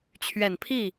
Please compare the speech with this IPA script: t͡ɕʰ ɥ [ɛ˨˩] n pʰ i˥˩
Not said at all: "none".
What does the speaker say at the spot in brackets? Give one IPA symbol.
ɛ˨˩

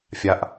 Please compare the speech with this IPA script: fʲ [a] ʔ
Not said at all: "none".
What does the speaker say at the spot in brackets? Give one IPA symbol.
a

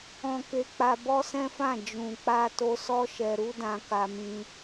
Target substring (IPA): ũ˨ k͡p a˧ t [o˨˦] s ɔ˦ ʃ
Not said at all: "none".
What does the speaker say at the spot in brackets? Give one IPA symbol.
o˧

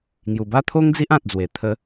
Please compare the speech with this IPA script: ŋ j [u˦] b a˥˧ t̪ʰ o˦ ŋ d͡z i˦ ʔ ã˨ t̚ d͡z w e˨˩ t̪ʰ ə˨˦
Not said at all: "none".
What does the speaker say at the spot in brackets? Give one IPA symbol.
u˨˩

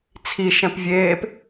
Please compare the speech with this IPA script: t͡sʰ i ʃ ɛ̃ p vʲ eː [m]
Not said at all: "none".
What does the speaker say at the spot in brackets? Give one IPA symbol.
p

